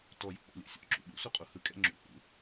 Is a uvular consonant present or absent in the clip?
present